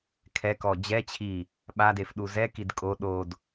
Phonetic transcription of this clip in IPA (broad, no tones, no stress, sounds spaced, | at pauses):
kʰ ɛ k ɔ d͡ʑ ɛ t͡ɕʰ i | ɓ a d e f ɗ u z ɛ k i d kʼ o ɗ o d